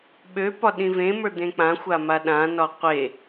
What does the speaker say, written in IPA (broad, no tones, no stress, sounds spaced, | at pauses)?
ɓ ø p ɒ ɗ ĩ v ẽ m ə˞ d̪ ẽ k͡p ã xʷ a m a ɗ ã n ɒ qʷ e